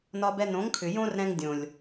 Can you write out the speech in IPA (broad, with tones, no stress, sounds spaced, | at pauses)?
n ɒ˧ b ɛ˧ n õ˨˦ ŋ kʰ ʏ˨ j õ˦ r ɾ ɛ̃˧ ŋ dʲ õ˨ lʲ